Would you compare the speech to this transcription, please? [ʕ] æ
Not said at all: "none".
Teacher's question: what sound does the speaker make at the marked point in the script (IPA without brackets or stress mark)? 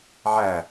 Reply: ʕ